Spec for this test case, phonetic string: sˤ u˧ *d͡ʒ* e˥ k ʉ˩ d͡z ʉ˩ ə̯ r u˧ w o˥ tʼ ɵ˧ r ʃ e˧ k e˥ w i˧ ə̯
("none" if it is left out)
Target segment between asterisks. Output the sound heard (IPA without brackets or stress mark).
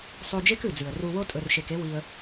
d͡ʒ